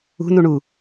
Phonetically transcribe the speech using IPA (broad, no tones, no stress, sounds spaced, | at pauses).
ṳ n u ɳ u